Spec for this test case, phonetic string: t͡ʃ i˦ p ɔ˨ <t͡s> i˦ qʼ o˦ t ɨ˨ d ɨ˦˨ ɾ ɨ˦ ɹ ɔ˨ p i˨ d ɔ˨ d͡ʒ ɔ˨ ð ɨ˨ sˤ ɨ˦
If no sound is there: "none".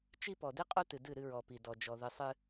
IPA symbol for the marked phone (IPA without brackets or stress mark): d